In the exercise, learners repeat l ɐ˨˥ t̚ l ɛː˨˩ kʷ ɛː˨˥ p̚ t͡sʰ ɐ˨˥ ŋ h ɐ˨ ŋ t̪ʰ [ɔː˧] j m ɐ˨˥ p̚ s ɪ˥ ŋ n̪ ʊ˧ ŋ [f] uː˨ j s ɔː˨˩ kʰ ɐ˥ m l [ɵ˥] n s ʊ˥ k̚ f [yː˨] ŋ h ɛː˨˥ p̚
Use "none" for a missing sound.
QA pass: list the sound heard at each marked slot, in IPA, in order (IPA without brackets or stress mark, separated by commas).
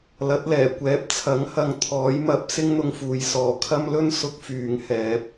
ɔː˨˥, f, ɵ˥, yː˨˧